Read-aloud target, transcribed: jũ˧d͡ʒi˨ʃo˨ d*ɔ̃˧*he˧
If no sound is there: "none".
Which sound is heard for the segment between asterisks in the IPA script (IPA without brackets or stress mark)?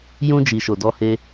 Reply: ɔ˧